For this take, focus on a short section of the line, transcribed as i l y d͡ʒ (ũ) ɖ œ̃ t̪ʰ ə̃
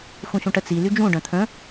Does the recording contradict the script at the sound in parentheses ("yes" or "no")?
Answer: no